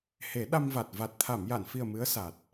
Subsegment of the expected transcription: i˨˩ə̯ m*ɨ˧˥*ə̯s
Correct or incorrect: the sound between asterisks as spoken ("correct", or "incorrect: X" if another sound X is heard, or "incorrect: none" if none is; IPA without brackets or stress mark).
correct